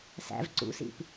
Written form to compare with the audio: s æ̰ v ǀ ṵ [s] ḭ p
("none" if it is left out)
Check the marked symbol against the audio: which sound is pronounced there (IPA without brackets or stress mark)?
s